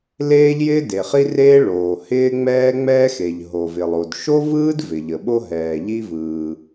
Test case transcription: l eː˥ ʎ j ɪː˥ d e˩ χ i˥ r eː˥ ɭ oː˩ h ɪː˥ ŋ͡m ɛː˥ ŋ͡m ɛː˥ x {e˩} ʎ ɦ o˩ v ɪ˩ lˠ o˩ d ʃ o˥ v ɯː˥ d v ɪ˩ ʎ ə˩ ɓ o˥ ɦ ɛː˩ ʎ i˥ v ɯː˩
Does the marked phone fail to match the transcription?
no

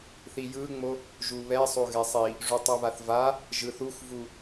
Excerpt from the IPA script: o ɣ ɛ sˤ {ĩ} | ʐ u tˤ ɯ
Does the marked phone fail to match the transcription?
yes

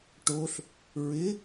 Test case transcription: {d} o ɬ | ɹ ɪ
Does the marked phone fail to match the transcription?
yes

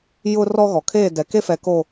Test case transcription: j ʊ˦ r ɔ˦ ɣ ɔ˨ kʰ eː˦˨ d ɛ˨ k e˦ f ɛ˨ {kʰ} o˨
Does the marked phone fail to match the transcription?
yes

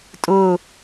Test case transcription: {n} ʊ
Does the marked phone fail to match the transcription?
yes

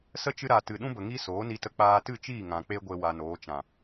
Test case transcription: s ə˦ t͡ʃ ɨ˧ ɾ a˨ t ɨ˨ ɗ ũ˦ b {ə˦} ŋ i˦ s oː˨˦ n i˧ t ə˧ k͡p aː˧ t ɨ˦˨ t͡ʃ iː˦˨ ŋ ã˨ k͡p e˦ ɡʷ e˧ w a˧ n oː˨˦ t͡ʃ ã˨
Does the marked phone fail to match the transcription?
yes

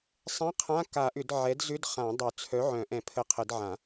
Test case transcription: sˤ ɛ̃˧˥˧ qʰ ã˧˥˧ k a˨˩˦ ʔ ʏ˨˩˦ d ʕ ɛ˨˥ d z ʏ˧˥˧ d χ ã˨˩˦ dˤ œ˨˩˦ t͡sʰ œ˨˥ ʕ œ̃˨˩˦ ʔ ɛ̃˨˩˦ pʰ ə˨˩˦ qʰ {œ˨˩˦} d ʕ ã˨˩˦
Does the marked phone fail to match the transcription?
yes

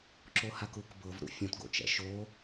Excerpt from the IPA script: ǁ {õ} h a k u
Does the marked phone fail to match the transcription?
yes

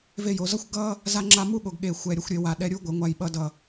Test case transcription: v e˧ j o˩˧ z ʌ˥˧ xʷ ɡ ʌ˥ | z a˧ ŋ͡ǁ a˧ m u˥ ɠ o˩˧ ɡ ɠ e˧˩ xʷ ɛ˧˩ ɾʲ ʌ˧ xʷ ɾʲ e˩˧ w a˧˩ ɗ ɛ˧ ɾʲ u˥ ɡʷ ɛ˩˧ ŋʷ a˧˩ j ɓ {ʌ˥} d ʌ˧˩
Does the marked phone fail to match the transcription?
yes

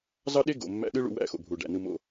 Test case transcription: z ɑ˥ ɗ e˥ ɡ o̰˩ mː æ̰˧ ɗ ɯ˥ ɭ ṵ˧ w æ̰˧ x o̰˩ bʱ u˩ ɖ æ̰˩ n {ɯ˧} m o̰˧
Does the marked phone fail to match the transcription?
no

